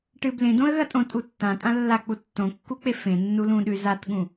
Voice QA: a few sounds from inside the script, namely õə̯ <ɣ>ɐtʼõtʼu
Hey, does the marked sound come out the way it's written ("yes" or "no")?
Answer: yes